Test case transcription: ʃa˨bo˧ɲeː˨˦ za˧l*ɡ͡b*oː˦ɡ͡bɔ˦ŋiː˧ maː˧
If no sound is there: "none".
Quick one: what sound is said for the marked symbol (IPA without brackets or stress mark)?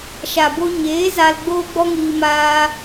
ɡ͡b